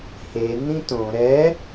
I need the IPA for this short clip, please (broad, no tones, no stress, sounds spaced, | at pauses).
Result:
h e n ĩ t õ ɾ ɛ